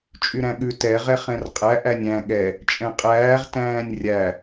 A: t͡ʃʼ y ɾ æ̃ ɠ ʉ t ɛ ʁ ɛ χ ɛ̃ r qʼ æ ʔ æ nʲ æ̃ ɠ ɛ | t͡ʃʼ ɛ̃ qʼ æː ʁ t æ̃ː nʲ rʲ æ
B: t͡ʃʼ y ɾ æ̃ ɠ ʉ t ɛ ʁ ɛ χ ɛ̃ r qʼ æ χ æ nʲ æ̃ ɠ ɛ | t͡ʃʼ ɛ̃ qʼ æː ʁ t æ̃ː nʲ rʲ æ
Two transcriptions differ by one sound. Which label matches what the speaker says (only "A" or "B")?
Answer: A